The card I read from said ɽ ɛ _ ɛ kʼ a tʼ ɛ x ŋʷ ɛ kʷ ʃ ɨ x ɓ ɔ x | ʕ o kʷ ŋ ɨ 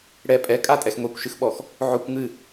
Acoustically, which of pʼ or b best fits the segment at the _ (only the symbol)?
pʼ